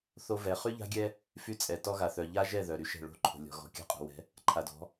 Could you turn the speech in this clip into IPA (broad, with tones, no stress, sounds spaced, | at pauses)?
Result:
θ o˦ v ɛ˨˦ χ y˦ ʎ a̤˦ ɡʲ ɛ˦ | f y˦ t͡sʼ ɛ˨ t ɔ˦ ɣ a˨ θ œ˨ ʎ a˦ ʒ ɛ˦˨ ð œ˨ ɾ y˦ ʃ ɛ̤˦˨ ɭ o̤˦ ǃʰ o̤˨ lʲ ɔ̤˨ ɣ ɔ̤˨ kʲ a̤˦ qʼ o̤˨ w ɛ̤˨˦ | ǃʰ a˨ d ɔ̤˨˦